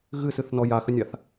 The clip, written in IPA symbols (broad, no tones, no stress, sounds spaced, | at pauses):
ɣ ɨ s ɨ θ n ɔ j a x ə nʲ a θ